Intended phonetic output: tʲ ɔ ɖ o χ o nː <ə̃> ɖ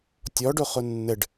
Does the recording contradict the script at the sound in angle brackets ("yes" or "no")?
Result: yes